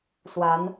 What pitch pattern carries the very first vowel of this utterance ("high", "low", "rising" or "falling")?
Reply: rising